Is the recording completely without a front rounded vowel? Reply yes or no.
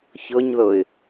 yes